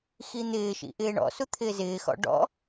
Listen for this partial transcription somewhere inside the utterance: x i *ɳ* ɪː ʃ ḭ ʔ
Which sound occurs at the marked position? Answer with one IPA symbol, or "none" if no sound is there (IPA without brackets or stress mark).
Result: n̪